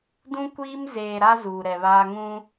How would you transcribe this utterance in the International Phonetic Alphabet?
dũ˦kʷiː˦m zeː˨ɾa˦ zuː˨ɾɛ˨βaː˦ ŋũ˦

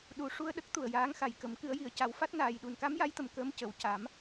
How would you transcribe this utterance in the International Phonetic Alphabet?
ɗu˨˩ ʂu˧ə̯ɗə˦˥k̚ t̪u˨˩ə̯jaː˧˥ŋxa˨˩jkə˨˩˦m kɨ˨˩˦ə̯ji˨˩˨ə̯ ca˨˩˦wfa˦˥t̚naː˨˩jɗu˨˩n ka˧˥mja˧˥jt̪ə˨˩m kəː˧˥mcə˨˩˨w ca˨˩˦m

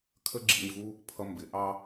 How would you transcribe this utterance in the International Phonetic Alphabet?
kʰə˦ɡ͡ǁḭ˧ɲvu˦ | pʰʌ˧ mbɪ˨˦ ʔɑ˦

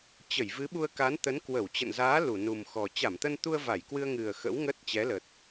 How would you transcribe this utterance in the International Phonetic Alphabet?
t͡ɕə˧˩jvɨ˨˦ɓu˧ə̯ka˨˦n t̪ə˨˦nkwə˧˩wt͡ɕə̰˧˨n zaː˨˦ lu˧˩nu˨˩mxɔ˨˩ t͡ɕa˧˩mt̪ə˧nt̪u˧ə̯ va˧˩jkwɨ˧ə̯ŋɨ˨˩ə̯ xə̰˧˥wŋə˦˥t̚t͡ɕɛ˨˦lə˨˩t̚

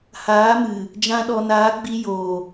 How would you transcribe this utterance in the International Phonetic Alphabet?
haː˨˦mɨ˨ | d͡ʒã˧ɗɔ˨naː˨˦ɡ͡bi˧ joː˨

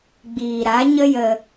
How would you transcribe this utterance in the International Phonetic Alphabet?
ɡ͡biː˨ɾa˨˦ ɲə˦jə˧

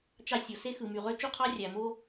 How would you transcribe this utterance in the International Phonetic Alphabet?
t͡ʃɑ˥sʲo˩ se˥xɯ˩my˩ʁø˥ t͡ʃu˥qʰɑ˥ rʲæ˩mo˥

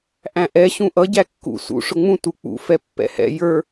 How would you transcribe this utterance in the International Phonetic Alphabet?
ʔæ̃ʔɛ ɕũʔʌ ɟækːṵ sṵ ʂʊŋ͡mũ tuk͡pṵ fɛpːɛ̰hɛ̰ jə˞

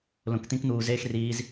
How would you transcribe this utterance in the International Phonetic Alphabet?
lõ˧k t̪ĩ˦kn̪uː˧zeː˦x riː˦z

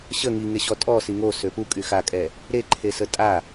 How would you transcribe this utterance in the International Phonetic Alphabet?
ɕə ŋiŋeɕɔ tʼɔsi ŋosø pukʼy xakʼɛ | ɾeǃʰesə tʼa

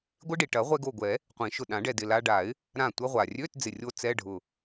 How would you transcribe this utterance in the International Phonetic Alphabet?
ɡʷɪ˦˥ɖi˩ ʈɐ˨˩˦ʁʷɛ˧ɡo˧˩ɡʷɛ˨˩˦ | qʷĩ˨˩˦ʃʊ˧˩ ɗã˨˩˦ɖɛ˧˩dɪ˧˩ la˧ɖa˨˩˦ɪ̯ | ɾã˧˩tʷɐ˧ʁʷa˩rʲø˧˥˧t d͡zɪ˧˩rʲo˦˥ t͡sɛ˧˥˧ɖʱʊ˧˩

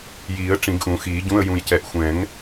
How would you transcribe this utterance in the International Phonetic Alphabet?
jiː˨˩˦ə̯ ʈ͡ʂĩ˨˩˦ɡʔũ˨˩˦xiː˨˩˦ɟũ˧˥˧ə̯ jũ˨jcɛ˨ʔ xʷɛ̃˨˩˦ŋ

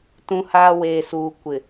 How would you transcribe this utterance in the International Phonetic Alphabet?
tũ˦haː˦ weː˨suː˨ kʷɪ˨

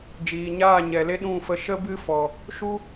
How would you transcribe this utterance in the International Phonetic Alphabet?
d͡ʒiː˨ɲaː˦˨ɲɛ˨le˦ ɗũ˦˨fə˧ ʃə˦bɨ˦ fɔ˨ | ʃu˦

